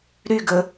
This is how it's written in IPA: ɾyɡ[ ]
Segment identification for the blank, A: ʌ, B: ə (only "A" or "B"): B